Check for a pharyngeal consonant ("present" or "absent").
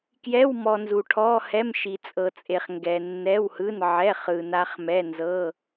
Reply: present